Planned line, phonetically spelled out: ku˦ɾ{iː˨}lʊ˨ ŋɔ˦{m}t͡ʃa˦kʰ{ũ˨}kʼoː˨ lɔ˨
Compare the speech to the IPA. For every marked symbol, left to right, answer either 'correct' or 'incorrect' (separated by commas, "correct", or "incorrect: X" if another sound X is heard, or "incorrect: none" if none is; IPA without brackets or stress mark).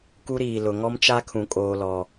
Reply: correct, correct, correct